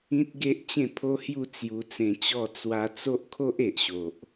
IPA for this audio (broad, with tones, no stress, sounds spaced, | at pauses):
ĩ˦ t̚ ɡ e˦ ʔ t͡ɕ ẽ˥˧ pʰ o˦ h j u˥˧ t͡s j u˧ t͡s ẽ˧ t͡ɕ ɔ˥˧ t͡s w a˧ t͡s o˦ ʔ kʰ o˦ ʔ e˨ ʔ ɕ o˨ ʔ